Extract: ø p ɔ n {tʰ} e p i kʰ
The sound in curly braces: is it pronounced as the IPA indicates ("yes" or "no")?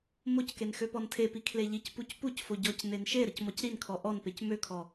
yes